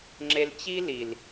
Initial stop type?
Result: click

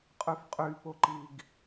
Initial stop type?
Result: ejective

